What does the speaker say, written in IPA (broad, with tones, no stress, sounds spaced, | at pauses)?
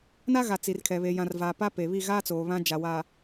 n a˦ ɣ a˨ t͡s i˨ r kʰ ɛ˨ β e˨ j ã˨ r v aː˨ p a˦ p e˨ β i˦˨ ɣ aː˦ t͡s oː˨ β ã˦ d͡ʒ a˨ w aː˨